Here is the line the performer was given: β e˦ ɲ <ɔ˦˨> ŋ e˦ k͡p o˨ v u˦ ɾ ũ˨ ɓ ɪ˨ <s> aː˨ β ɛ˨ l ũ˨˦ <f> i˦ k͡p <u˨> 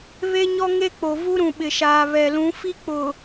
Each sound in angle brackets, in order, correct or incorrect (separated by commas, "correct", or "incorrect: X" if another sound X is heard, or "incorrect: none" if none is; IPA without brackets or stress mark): incorrect: ɔ˦, incorrect: ʃ, correct, incorrect: ʊ˨